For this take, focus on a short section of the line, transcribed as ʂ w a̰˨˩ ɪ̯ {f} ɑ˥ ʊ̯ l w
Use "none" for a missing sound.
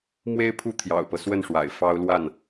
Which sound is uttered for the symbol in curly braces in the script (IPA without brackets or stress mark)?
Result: f